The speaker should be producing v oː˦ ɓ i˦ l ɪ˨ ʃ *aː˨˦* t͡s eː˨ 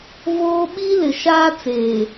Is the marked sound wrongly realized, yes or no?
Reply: yes